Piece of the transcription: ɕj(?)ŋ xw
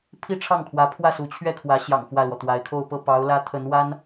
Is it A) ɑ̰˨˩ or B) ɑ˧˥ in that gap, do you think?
A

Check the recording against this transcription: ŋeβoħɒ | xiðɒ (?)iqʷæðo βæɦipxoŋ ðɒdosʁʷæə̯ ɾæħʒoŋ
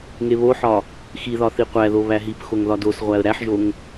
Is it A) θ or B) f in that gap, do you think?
A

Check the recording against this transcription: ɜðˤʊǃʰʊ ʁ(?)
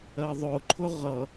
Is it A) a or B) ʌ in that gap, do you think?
B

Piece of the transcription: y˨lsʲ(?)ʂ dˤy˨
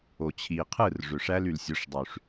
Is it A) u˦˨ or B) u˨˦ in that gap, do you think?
B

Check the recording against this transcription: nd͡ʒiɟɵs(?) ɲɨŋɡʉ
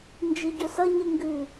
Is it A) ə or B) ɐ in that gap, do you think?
B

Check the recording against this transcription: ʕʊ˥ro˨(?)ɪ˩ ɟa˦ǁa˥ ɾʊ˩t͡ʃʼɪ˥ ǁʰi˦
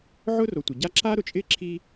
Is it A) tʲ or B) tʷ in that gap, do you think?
B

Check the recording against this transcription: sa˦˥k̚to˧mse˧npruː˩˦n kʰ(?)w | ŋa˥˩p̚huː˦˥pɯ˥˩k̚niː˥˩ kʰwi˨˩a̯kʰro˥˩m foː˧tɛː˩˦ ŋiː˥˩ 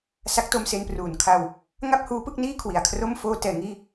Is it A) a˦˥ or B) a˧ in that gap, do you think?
B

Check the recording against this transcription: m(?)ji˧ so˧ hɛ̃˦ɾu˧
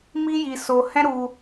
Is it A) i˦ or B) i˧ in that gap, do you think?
A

